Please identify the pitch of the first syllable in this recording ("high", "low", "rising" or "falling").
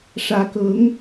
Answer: rising